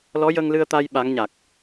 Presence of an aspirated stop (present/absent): absent